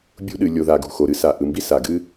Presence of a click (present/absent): absent